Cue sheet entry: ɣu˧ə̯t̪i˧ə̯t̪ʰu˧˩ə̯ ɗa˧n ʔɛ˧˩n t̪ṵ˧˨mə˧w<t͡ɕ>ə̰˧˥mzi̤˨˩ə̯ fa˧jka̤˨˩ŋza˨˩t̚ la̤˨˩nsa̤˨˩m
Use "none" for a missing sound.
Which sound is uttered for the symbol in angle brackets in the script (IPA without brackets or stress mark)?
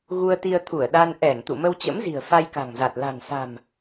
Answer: t͡ɕ